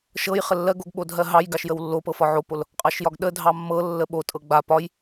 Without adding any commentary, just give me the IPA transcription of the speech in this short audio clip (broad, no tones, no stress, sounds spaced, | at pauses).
ʃ ɤ j χ ə lː ɜ ɡ o ɡ ɓ o dʱ ɜ ɦ ɑ j ɡ ɑ ʃ j ə w lː o p ɤ f ɒ ʕ o p o l | qʼ ɑ ʃ j ɒ ɡ ɗ ə dʱ ɑ mː ɤ lː ə ɓ o tʼ ɤ ɡ͡b a p ɒ j